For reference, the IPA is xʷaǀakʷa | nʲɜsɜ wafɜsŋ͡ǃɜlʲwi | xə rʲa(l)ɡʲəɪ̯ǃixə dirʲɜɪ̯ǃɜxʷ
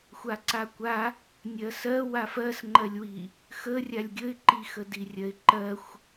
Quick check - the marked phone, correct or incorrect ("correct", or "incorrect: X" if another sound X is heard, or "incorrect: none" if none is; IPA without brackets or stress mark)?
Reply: incorrect: lʲ